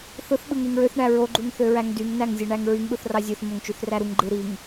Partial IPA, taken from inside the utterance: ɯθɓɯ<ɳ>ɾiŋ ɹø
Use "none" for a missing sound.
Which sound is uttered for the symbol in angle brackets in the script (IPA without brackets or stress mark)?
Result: ŋ